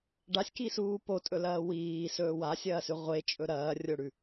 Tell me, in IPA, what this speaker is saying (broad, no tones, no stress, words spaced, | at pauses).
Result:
ɖasʲkisuː potʼɵlɐː wiːsɵː wasʲɐːsʉ ʁʷet͡ʃʼɵ ɾɐːrʲoɽʉ